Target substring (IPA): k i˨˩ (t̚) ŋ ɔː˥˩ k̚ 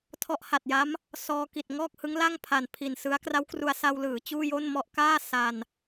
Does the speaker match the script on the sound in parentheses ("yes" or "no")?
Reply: yes